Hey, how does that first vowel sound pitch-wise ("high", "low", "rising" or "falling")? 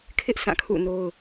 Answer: high